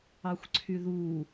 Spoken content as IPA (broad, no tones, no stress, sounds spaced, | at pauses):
ɑ xʷ ǀʰ y ð u